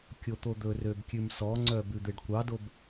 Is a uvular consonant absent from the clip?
yes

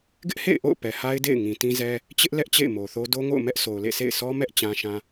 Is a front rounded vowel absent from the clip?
yes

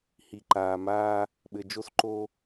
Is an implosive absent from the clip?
no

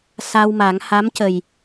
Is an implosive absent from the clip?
yes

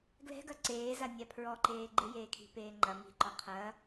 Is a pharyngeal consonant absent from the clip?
yes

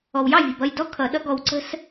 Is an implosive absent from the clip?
no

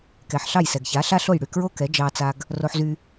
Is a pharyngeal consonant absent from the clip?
no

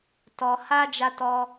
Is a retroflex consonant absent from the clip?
yes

